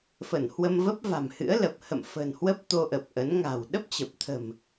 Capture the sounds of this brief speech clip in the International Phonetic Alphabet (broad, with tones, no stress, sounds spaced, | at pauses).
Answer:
f ə˧˩ n h w ə˧ m v ə˦˥ p̚ v a̤˨˩ m h ɨ̰˧˥ ə̯ l ə˨˩ p̚ h ə̰˧˨ m f ə̤˨˩ n h w ə˦˥ p̚ t̪ o˧ ʔ ə˨˩ p̚ ʔ ə˨˦ n ŋ a̤˨˩ w ɗ ə˦˥ p̚ t͡ɕ ə˨˩ p̚ t̪ʰ ə̤˨˩ m